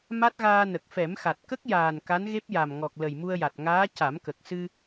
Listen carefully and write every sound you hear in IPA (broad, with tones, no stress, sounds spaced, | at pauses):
m a˦˥ t̚ ɣ aː˧ n ə˨˩ k̚ f ɛ˨˩˦ m x a˨˩ t̚ k ə˦˥ k̚ j aː˨˩ n k a˧˥ n ɣ e˦˥ p̚ j a˨˩ m ŋ ɔ˨˩ k̚ l ə˨˩ j m u˧ ə̯ j a˨˩ t̚ ŋ aː˧˥ c a˨˩˦ m k ə˨˩ k̚ s ɨ˧